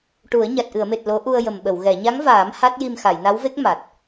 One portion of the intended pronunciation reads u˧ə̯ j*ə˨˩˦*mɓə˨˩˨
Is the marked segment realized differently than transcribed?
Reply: yes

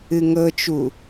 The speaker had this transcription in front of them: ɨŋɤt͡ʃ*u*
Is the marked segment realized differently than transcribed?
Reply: no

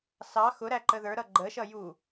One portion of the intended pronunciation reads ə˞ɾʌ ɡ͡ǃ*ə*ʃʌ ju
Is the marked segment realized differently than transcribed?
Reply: no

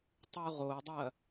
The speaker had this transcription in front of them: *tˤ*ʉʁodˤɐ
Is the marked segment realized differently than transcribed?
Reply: no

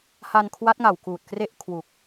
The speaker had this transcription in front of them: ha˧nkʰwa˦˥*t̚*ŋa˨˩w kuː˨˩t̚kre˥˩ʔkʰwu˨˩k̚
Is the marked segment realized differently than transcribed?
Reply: no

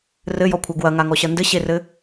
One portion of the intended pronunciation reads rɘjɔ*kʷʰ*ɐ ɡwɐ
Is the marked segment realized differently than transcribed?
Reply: no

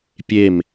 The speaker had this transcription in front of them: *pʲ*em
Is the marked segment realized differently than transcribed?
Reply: no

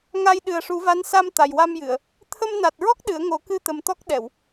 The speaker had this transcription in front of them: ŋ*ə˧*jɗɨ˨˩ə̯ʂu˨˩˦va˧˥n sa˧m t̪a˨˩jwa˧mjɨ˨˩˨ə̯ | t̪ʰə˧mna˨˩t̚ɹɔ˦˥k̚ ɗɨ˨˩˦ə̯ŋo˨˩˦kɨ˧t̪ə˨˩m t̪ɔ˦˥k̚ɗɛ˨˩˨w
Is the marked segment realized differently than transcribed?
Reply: yes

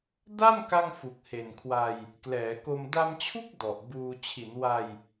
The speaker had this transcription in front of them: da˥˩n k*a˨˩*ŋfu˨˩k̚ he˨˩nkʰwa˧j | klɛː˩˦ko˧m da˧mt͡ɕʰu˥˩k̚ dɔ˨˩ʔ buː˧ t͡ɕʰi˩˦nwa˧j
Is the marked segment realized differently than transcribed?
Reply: yes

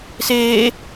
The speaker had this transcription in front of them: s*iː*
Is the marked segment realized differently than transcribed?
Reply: yes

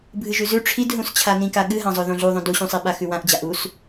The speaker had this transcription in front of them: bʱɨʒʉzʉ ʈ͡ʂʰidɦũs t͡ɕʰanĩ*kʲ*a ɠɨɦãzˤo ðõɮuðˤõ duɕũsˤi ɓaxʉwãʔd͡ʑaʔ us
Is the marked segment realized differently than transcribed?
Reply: yes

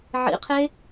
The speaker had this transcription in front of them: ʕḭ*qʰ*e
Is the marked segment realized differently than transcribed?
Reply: no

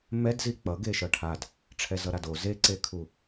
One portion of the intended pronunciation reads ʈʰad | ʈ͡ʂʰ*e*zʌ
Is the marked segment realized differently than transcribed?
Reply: yes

